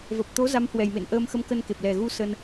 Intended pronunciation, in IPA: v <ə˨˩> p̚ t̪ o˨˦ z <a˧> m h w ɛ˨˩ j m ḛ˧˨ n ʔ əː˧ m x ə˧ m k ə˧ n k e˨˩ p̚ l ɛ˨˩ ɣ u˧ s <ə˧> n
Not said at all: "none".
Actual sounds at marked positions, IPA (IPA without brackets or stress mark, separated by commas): ə˨˩, a˨˦, ə˧